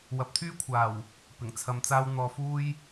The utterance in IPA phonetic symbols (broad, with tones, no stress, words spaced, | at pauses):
wɐ˨˥p̚t̪ʰyː˥kʷʰaː˨˩w | pɪ˨˩ŋt͡sʰɐ˧mt͡saː˥w n̪ɔː˧fuː˥j